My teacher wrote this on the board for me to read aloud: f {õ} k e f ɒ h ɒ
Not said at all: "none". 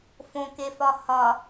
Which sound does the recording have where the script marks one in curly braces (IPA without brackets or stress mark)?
õ